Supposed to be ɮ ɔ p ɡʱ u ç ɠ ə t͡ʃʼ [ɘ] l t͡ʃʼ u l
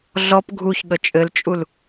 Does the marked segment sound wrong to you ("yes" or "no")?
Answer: no